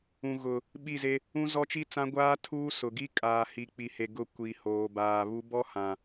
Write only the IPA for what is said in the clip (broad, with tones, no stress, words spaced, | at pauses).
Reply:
ũ˨ɣʊ˨ | ɓi˦˨ze˦ | ũ˦zɔ˦t͡ʃi˦t͡sã˦ ɡʷaː˦tʰuː˦ sʊ˨ɡi˦ kʼaː˨hi˨k͡pi˨he˨ ɡʊ˦˨kʷi˨hoː˨baː˨ βu˨˦bɔ˦ hã˨